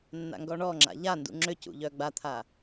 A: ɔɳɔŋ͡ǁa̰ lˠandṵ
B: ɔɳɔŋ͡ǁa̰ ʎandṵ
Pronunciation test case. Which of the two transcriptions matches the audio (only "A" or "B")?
B